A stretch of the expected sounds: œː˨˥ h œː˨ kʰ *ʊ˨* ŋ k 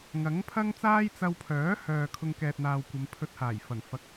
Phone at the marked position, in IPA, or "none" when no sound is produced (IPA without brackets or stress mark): ʊ˧